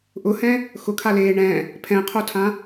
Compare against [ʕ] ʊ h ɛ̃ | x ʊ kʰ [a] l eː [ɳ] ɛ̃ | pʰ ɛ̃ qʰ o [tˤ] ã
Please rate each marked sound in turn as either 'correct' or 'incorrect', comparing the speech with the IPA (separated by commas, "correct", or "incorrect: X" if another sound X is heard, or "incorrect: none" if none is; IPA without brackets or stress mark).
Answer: incorrect: ʔ, correct, correct, incorrect: tʰ